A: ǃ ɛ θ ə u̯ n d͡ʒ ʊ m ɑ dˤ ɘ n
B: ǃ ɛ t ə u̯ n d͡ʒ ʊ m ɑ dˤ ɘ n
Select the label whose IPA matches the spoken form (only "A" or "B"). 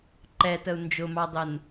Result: B